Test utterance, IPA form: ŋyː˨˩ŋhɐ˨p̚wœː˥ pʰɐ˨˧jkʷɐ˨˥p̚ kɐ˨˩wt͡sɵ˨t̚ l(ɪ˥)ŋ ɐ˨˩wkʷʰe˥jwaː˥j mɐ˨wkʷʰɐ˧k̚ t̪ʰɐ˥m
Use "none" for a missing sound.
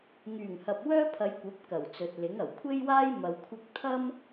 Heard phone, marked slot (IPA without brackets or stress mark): ɪ˨˥